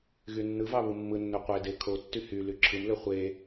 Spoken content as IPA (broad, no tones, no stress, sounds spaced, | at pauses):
ɣ y nː ɯ v ɑ β ɯ mː ɯ nː ø qʷ e d e kʰ o tː y h y l y ǁʰ ɯ m l ø χʷ e